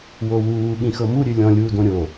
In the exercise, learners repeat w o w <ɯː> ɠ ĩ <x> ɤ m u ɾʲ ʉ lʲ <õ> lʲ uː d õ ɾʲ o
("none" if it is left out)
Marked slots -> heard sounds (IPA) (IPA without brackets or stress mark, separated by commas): uː, x, ɔ̃